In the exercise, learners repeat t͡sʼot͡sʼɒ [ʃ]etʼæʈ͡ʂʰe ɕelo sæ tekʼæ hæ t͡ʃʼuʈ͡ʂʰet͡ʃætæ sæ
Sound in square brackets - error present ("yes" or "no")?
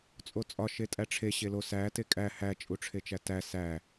no